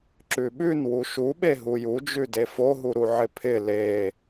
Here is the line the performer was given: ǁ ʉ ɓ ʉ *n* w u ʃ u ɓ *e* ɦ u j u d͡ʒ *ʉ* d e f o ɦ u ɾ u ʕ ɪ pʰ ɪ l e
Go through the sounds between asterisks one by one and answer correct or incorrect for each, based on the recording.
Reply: correct, correct, correct

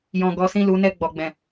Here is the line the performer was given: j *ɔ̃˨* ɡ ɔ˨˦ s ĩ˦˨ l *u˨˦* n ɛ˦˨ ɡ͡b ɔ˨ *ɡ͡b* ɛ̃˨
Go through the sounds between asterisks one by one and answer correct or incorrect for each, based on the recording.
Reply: correct, correct, correct

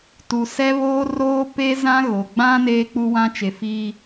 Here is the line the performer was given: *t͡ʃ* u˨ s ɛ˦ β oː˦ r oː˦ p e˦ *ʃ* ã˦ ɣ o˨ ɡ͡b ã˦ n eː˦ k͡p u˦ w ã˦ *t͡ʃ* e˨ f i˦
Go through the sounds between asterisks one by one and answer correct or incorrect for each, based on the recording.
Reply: incorrect: t, incorrect: z, correct

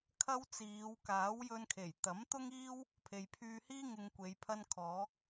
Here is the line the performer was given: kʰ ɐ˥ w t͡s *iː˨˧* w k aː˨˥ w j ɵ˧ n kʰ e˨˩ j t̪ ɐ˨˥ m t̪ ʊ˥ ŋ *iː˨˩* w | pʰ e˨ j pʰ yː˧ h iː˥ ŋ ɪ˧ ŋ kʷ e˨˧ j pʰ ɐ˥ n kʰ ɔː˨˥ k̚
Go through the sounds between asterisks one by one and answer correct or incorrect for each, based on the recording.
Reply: correct, incorrect: iː˥

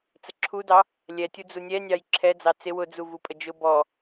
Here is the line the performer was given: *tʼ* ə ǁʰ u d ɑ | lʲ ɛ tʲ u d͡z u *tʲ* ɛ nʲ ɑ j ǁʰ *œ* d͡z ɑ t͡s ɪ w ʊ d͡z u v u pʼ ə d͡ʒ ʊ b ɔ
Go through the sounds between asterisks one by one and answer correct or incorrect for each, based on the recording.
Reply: incorrect: t͡s, incorrect: nʲ, incorrect: ɛ

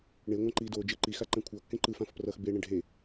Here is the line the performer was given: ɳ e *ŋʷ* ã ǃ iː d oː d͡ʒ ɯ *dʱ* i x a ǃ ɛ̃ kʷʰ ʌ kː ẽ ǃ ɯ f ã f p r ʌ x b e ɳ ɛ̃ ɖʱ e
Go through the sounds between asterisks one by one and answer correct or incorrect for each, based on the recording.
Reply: correct, incorrect: ǃ

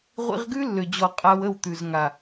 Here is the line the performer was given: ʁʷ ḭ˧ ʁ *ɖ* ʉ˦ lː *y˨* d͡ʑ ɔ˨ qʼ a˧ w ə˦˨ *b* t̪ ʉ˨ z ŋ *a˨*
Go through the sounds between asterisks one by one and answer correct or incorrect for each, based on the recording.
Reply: incorrect: ɡ, incorrect: ø˨, incorrect: w, correct

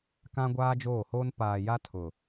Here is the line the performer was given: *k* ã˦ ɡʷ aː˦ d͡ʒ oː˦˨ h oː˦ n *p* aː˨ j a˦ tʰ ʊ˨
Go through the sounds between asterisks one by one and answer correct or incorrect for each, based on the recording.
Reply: correct, correct

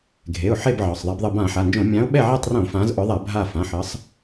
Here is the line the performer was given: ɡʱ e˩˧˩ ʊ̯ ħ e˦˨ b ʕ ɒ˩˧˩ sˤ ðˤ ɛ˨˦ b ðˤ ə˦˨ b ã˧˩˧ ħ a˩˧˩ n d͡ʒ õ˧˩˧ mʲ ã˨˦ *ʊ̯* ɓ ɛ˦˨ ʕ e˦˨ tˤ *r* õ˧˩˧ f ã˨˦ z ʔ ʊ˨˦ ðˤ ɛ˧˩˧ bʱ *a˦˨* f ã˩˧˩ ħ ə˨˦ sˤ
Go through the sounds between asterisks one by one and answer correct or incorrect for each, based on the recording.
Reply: correct, correct, correct

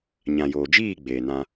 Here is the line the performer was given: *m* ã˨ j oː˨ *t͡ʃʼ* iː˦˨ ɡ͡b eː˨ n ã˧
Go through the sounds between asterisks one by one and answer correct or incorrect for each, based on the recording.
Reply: incorrect: ɲ, incorrect: d͡ʒ

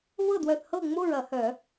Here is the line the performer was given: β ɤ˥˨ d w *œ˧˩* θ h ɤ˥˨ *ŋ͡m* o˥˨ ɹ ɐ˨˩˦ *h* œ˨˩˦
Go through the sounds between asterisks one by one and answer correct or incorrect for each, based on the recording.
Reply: correct, correct, correct

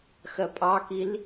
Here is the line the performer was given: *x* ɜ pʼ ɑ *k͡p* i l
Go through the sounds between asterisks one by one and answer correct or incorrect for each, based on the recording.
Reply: correct, incorrect: k

